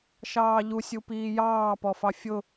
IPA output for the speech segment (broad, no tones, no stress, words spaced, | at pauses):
ʃɑːʎusʲu piːjɑːpɔfɑ fʲʊ